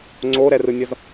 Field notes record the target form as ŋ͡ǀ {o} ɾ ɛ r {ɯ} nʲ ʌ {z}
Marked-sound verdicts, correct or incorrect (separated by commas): correct, correct, correct